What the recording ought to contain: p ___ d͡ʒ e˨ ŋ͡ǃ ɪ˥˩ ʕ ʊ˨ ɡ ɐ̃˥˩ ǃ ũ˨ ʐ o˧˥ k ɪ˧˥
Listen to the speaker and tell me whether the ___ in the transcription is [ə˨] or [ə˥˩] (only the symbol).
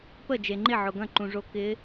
ə˥˩